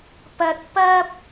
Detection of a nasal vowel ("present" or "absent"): absent